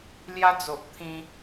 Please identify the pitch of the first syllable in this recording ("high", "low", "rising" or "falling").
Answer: high